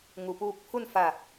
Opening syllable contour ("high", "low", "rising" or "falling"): low